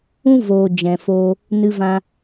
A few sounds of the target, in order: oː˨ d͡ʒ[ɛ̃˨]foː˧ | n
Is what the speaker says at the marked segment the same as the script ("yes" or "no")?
yes